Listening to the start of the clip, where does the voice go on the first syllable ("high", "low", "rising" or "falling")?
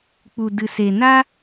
low